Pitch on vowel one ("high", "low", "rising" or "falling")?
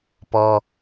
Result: high